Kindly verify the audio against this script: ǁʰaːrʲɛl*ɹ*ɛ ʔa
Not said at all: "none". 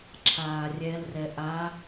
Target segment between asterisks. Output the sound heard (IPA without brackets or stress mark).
r